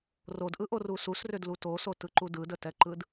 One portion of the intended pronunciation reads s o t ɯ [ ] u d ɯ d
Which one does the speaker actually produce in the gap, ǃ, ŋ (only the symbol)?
ǃ